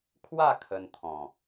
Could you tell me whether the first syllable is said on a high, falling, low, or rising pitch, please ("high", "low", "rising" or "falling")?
falling